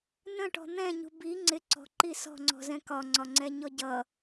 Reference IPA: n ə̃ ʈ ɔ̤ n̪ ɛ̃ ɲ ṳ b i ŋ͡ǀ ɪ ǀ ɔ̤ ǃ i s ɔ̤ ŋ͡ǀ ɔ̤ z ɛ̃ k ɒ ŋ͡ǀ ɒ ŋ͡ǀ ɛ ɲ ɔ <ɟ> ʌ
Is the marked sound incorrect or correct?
correct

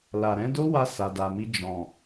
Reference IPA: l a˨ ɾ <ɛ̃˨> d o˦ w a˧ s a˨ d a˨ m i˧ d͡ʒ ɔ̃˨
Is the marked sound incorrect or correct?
incorrect: ɛ̃˨˦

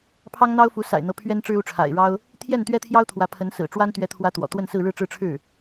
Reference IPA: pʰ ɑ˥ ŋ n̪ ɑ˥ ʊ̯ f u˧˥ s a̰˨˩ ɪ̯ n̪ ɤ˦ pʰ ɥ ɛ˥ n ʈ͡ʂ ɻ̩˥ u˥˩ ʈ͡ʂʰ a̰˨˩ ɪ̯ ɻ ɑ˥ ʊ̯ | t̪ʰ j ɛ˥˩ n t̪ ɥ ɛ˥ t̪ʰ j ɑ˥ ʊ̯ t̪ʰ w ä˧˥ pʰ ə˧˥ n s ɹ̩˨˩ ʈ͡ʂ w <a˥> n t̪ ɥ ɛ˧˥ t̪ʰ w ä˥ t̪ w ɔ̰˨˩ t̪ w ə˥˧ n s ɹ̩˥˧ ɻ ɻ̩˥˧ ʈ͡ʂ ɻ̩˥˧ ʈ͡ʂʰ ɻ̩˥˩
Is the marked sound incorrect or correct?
correct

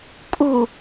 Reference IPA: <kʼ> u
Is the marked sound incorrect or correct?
correct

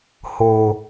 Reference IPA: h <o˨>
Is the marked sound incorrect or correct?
correct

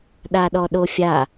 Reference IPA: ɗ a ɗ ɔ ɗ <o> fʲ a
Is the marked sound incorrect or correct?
correct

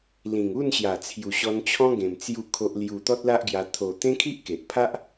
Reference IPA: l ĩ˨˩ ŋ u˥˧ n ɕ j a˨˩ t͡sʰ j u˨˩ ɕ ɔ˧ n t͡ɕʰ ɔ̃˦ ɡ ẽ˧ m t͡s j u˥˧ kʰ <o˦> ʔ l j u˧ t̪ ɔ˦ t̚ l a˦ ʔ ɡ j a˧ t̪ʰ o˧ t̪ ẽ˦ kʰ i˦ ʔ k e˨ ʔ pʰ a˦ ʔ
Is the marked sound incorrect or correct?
correct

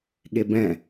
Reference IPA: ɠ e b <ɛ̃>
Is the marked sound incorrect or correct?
correct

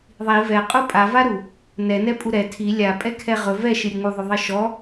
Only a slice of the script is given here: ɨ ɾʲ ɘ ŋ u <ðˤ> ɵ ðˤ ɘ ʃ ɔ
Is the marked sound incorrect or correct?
correct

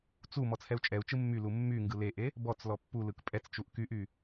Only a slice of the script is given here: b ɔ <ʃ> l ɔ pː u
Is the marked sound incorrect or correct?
incorrect: t͡s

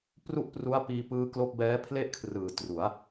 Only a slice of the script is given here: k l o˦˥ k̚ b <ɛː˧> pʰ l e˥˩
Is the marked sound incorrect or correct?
incorrect: ɛː˦˥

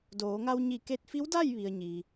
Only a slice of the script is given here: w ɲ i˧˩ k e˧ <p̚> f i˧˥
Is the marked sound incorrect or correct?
incorrect: t̚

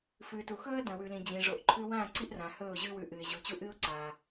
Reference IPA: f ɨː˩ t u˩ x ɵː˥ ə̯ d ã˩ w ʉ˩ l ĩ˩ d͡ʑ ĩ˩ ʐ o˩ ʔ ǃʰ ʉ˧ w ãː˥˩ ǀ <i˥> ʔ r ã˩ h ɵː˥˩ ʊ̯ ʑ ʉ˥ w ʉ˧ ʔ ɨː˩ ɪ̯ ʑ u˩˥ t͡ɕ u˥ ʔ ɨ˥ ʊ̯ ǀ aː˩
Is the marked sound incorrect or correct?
correct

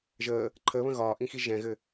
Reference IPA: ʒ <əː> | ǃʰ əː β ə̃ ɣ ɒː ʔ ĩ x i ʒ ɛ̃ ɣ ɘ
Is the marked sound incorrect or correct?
correct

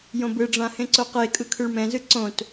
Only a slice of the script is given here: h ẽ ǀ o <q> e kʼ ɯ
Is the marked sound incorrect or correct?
correct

